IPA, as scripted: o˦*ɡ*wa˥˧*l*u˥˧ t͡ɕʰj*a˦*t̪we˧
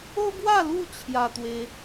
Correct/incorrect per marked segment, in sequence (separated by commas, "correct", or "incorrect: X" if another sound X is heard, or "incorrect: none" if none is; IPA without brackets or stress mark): correct, correct, incorrect: a˧